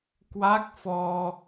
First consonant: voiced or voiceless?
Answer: voiceless